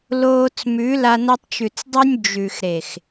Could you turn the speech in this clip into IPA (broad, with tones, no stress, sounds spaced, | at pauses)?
l oː˧ t͡s m ʉ˨˦ l a˧ n ɐ˧ tˤ t͡ʃ ʉ˨ t͡s dˤ ʉ˧ nʲ d͡ʒ ʉ˨ x ɾ e˨ x